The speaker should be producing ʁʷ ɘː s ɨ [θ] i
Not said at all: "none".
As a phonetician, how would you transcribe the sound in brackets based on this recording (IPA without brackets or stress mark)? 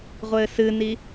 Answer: n